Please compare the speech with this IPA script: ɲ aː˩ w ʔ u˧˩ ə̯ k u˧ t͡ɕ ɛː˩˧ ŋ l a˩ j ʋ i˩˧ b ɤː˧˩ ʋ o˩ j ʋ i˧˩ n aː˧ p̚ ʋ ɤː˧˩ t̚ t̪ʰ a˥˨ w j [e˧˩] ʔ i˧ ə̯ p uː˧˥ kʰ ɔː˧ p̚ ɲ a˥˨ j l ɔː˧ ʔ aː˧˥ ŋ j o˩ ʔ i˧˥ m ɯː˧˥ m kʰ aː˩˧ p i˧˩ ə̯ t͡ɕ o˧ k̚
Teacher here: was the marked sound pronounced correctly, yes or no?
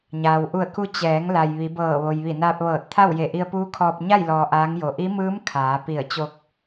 yes